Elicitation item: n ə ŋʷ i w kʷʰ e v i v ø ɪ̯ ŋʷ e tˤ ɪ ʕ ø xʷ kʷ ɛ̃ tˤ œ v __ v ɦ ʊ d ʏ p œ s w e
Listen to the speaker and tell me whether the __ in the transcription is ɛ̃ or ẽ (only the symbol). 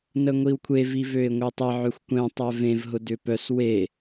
ẽ